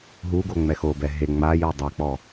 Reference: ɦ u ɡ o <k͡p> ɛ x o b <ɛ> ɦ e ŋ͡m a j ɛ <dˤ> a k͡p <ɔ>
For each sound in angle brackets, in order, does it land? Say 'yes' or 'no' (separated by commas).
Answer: no, yes, yes, yes